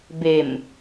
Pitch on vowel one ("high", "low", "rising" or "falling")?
low